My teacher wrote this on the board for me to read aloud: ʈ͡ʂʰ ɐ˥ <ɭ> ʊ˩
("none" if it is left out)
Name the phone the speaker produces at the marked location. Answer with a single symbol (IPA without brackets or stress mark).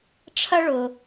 ɭ